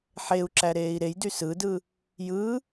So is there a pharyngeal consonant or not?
yes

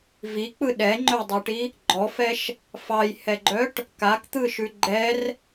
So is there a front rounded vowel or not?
yes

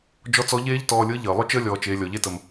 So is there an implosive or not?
no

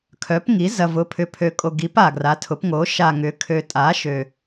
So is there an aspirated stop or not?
yes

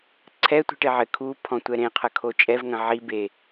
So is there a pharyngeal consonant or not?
yes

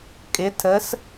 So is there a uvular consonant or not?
no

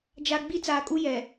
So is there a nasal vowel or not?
no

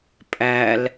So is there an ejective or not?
yes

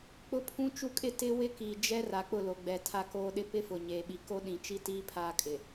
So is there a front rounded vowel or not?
no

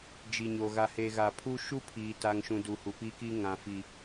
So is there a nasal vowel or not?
yes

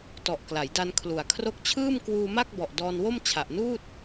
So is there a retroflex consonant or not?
no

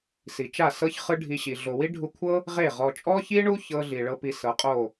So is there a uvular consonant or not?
yes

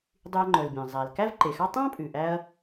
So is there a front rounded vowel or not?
yes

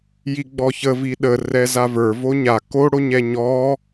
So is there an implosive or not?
yes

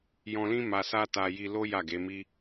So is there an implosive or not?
no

